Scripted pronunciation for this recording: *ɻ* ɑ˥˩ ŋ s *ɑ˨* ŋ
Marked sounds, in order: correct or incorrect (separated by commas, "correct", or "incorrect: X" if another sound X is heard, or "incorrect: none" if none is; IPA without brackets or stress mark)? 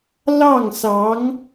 incorrect: l, incorrect: ɑ˧˥